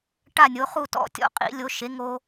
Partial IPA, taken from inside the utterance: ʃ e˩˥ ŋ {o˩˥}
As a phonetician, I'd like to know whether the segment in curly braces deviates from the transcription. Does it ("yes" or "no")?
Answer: yes